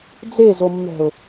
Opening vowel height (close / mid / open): mid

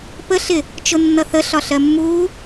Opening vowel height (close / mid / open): mid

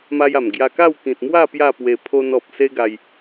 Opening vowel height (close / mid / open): open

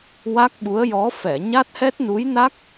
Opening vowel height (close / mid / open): open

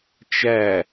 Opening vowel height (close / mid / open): open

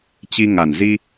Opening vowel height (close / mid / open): close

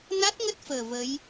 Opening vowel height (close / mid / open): open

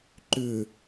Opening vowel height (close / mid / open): close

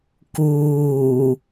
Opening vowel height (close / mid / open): close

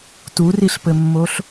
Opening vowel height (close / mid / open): close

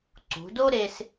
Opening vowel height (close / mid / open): close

